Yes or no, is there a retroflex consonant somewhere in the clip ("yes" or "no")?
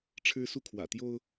yes